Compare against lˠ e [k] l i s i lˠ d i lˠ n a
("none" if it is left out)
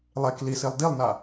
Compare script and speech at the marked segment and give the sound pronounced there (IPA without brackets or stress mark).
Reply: k